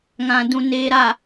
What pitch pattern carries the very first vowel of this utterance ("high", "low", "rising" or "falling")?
low